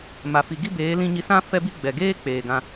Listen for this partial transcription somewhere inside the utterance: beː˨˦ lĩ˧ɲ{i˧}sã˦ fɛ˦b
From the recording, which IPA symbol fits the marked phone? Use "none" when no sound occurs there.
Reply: i˧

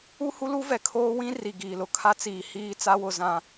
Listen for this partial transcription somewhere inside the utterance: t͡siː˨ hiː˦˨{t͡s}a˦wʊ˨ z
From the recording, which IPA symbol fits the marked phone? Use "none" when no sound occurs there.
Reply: t͡s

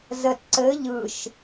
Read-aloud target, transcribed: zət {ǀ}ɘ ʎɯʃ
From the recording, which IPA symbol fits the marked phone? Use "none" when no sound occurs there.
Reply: ǀ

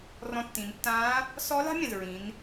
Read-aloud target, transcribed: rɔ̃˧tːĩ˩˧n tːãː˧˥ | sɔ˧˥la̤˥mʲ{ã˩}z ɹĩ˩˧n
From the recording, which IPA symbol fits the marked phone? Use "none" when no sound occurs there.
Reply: ã˩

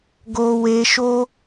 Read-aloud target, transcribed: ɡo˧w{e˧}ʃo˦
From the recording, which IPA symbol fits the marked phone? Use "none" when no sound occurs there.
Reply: e˧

